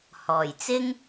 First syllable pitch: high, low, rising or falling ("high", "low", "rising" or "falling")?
low